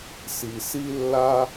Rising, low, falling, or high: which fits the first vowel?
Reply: low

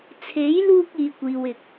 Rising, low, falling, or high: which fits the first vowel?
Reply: rising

